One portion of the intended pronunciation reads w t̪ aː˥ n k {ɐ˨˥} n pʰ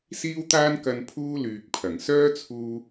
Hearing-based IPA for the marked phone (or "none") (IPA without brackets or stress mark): ɐ˧